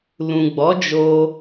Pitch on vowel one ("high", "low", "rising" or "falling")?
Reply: low